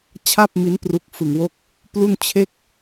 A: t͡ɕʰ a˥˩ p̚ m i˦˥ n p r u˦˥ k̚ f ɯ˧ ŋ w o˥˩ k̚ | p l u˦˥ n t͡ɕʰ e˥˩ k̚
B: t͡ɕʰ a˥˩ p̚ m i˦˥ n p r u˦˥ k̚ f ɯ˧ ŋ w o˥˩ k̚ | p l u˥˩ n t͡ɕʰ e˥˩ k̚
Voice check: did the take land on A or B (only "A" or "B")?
B